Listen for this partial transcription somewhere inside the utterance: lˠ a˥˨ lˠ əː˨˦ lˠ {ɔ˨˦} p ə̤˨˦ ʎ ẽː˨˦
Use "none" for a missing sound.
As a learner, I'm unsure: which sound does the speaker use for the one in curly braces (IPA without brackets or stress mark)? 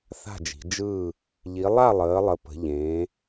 ə˨˦